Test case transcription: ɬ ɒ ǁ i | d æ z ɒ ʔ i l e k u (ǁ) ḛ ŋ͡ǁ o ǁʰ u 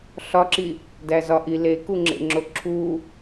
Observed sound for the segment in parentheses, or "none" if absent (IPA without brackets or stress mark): ŋ͡ǁ